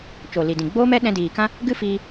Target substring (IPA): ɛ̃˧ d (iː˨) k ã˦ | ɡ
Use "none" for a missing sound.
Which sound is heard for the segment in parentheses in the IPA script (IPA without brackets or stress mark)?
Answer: iː˨